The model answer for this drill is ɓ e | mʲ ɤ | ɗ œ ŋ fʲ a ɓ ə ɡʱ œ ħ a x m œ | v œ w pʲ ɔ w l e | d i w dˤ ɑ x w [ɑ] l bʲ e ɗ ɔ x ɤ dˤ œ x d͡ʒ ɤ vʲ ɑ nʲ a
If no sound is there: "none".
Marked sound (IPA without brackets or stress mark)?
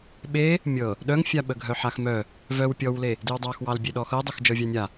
ɑ